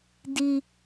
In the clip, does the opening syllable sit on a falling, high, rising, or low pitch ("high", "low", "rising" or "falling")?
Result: high